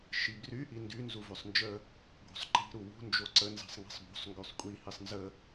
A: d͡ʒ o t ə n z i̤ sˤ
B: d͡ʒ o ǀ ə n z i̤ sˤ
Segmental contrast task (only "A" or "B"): B